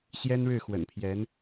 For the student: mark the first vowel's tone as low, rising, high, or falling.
high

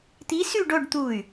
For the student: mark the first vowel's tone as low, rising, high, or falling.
rising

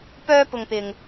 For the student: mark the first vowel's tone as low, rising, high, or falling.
high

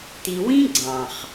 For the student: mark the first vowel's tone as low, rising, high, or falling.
low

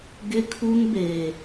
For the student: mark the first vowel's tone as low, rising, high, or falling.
high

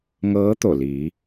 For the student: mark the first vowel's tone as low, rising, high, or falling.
rising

